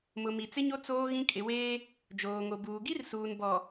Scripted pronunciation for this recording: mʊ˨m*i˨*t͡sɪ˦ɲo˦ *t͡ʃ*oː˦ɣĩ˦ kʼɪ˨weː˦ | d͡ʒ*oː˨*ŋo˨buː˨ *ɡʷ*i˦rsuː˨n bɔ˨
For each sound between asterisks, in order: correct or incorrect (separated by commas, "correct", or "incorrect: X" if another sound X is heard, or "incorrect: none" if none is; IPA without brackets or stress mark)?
correct, incorrect: t͡s, correct, incorrect: ɡ